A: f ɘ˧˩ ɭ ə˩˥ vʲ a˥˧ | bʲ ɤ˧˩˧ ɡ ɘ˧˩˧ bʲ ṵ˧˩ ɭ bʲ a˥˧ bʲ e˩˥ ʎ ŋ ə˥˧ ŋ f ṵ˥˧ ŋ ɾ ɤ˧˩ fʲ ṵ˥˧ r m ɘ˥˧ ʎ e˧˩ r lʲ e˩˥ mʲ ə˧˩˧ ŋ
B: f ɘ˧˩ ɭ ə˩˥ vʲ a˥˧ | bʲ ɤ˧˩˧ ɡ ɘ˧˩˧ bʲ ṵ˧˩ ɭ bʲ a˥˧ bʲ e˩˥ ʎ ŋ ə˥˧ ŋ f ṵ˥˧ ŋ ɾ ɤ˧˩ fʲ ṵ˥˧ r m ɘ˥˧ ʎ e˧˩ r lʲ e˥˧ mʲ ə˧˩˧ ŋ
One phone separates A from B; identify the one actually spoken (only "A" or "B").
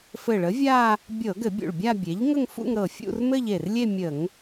B